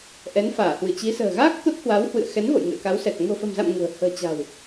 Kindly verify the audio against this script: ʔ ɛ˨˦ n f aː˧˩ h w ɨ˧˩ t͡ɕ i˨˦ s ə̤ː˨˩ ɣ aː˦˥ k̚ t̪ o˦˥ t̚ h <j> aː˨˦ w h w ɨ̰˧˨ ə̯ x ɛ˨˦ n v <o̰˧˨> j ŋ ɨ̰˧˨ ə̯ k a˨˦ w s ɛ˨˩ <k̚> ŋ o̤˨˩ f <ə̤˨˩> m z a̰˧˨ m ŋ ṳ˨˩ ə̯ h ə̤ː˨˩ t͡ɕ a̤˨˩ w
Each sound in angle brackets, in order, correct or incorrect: incorrect, correct, correct, correct

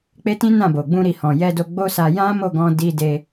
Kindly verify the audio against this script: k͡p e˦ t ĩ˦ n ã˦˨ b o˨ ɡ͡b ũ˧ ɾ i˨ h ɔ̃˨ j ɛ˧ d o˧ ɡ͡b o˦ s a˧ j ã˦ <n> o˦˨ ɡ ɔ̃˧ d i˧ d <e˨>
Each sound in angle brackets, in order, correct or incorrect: incorrect, incorrect

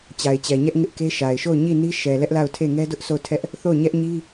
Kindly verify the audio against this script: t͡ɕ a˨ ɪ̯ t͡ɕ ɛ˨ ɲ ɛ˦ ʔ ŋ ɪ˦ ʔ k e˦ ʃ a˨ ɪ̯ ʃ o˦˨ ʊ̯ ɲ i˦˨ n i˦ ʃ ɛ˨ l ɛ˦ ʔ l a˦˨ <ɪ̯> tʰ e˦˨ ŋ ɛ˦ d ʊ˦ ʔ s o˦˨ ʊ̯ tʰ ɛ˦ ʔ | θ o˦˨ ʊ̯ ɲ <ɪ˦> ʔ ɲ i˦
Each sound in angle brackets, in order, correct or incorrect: incorrect, incorrect

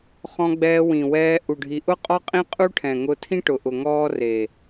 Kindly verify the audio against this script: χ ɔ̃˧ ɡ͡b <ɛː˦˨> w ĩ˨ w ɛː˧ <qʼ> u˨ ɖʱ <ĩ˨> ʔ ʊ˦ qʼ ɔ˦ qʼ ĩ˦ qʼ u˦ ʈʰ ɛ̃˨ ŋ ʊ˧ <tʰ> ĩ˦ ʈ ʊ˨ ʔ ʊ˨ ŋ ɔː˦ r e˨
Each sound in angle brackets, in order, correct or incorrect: incorrect, incorrect, incorrect, correct

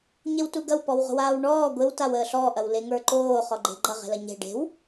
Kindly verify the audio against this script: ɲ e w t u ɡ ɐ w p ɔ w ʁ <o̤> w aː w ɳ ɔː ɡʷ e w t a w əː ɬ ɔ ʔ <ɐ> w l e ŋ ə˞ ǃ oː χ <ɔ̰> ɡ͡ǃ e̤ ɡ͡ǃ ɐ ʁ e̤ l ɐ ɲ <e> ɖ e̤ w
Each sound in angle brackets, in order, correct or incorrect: correct, correct, incorrect, incorrect

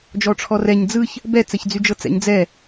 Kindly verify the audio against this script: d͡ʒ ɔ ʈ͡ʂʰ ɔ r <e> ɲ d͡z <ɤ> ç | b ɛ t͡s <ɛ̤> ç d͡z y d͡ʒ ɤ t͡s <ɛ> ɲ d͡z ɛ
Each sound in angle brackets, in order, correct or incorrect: incorrect, incorrect, incorrect, incorrect

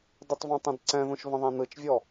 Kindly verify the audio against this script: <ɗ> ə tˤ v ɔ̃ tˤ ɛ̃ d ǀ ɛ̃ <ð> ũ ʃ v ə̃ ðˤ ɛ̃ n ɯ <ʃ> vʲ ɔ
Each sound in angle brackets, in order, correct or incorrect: incorrect, correct, incorrect

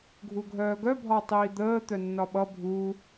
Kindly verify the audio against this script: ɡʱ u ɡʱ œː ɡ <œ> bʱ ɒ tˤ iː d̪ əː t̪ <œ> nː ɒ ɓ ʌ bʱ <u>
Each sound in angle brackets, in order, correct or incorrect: correct, correct, correct

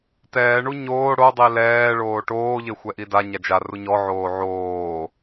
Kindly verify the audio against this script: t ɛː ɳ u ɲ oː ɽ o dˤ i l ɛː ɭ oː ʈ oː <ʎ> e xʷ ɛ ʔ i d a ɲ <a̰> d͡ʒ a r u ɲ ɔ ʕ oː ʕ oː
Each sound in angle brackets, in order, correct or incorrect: correct, incorrect

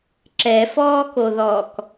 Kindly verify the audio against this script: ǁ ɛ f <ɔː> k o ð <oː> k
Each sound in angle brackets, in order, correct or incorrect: correct, incorrect

